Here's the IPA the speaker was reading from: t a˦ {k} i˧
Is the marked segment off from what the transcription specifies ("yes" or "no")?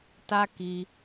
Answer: no